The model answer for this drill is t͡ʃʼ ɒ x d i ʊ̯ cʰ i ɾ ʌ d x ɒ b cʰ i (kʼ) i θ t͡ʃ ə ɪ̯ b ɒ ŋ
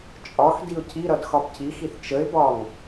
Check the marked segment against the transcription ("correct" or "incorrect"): incorrect